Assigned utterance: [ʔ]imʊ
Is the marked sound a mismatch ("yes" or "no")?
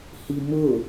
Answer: yes